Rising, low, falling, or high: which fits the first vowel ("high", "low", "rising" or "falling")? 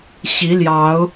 rising